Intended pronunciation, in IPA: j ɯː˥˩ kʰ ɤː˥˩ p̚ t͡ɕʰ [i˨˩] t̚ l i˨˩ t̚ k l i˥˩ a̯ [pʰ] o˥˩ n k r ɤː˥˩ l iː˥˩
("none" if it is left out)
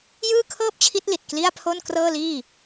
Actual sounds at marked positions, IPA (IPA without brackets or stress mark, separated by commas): i˦˥, pʰ